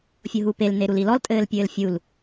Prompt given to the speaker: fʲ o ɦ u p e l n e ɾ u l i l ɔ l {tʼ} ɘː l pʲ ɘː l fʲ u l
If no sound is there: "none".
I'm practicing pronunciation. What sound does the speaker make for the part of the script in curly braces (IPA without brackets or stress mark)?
tʼ